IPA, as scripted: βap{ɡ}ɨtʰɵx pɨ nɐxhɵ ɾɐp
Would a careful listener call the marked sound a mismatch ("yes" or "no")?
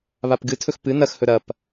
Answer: no